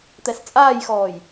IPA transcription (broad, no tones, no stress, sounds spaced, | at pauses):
t̪ ɛ s t͡sʼ aː j x ɔː j